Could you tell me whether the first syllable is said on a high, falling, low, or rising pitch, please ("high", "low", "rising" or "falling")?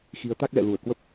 rising